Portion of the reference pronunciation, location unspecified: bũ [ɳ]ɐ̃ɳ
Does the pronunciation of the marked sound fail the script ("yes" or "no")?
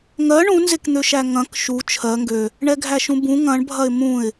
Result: yes